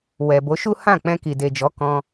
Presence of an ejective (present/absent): absent